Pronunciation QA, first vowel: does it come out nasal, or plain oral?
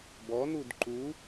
oral